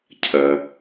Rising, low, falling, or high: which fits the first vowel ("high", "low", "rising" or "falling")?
low